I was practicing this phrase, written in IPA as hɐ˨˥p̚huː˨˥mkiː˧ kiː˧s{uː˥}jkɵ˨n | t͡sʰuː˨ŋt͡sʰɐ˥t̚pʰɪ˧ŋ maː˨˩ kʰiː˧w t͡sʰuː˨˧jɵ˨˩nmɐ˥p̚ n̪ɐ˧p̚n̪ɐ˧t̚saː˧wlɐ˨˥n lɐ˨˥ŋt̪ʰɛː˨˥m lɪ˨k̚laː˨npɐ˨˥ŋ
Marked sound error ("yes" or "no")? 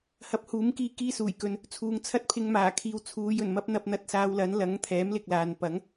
yes